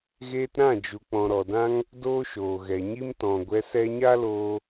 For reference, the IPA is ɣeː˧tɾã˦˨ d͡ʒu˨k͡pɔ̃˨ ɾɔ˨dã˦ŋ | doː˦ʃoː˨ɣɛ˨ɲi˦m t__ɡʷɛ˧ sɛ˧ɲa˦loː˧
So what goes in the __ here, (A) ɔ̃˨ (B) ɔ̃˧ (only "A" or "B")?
A